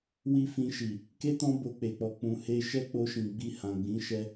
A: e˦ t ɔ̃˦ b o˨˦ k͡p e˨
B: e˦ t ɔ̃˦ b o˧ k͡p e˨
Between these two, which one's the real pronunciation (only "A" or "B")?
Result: B